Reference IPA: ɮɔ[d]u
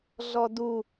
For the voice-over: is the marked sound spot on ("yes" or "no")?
yes